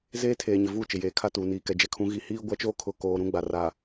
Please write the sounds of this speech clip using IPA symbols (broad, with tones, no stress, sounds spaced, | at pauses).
z eː˦ tʰ eː˨ ɲ ɪ˨ v u˦˨ t͡ʃ ɪ˨ j eː˨ kʰ a˦ t uː˨ n iː˨ k ɛ˨ d͡ʒ ɛ˨ kʰ ũ˨˦ ɣ i˨ h iː˦ ɡʷ a˦ t͡ʃ oː˦ kʰ ʊ˨˦ k oː˨ ɾ ũ˨˦ ɡ͡b a˨ r a˨